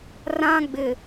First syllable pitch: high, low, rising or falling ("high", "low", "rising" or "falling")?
high